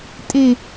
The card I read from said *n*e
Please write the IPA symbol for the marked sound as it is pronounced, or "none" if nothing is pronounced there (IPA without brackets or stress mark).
tʼ